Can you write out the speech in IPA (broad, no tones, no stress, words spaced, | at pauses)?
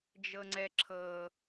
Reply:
d͡ʒɤŋ͡ǀɛǁʰɤ